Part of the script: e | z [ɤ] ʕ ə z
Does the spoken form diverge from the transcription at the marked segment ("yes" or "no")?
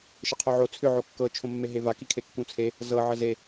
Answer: no